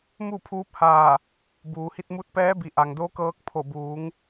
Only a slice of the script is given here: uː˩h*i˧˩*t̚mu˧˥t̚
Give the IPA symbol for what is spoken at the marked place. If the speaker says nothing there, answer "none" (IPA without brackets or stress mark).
i˧